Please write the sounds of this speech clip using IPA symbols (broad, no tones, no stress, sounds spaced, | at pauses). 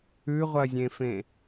ʉ ʁʷ ɐ zʲ ẽ f ẽ